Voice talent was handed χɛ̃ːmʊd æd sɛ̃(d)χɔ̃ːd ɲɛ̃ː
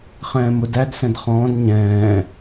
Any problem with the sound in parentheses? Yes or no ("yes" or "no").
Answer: no